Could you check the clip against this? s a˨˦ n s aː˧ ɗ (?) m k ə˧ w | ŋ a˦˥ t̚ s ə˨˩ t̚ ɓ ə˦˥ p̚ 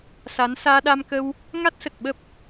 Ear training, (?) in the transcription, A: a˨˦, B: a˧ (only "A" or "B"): B